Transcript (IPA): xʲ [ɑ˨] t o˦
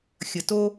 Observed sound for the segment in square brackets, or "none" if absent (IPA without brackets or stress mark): ə˨